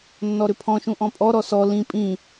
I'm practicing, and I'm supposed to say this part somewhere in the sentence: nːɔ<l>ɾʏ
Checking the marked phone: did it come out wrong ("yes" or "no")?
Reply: yes